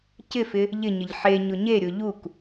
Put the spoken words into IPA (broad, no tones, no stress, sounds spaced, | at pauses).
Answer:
c ɪ f ɪ | ʎ ɪ ɲ ɪ ʎ ħ e ɲ ʊ ɲ e ɾʲ ʊ ʎ u k